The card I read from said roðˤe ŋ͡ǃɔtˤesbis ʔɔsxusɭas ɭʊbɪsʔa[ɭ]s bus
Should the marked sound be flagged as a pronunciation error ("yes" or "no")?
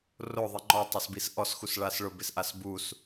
yes